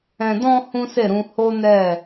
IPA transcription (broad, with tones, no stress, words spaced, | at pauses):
ɛ̃˨dɔ̃˧ hũ˦se˦˨ɾũ˧ ho˦nɛ˦˨